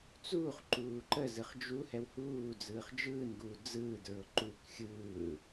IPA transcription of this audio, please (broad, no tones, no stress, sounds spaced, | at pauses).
t͡s uː χ ǃ uː ǃ ə z ɯ χ d͡ʒ u h ɛ w h uː d͡z ɯː χ d͡ʒ ɯː n ɡ uː d͡z ɯː d ɹ ʊ ǃ u k xʲ ɯː